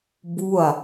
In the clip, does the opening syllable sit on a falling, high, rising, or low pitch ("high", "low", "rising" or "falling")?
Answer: falling